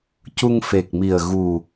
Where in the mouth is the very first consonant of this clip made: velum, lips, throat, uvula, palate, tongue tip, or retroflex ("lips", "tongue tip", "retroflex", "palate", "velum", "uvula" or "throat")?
palate